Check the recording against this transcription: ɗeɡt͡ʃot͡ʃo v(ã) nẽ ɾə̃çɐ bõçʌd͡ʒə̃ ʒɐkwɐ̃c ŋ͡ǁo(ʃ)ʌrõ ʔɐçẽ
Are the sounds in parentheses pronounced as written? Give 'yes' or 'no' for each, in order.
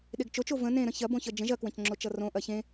no, no

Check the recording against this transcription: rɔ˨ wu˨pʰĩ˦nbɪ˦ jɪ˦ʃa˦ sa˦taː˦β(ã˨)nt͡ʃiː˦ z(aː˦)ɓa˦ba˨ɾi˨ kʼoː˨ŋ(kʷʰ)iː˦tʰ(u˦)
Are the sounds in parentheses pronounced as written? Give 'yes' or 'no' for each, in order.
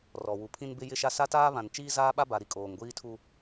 yes, yes, no, yes

